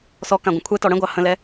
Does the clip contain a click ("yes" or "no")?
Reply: no